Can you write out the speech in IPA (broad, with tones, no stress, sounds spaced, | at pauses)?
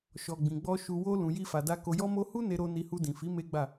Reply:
ʃ ɔ˨ ɡ͡b ĩ˨ ɡ͡b ɔ˧ ʃ u˧ w o˦ l ũ˧ j i˦ f a˧ d a˦ k o˧ j ɔ˦ m o˦ h u˦ n e˧ ɾ o˧ n i˧ h u˧ d ĩ˨ f i˨˦ m e˦ ɡ͡b a˦˨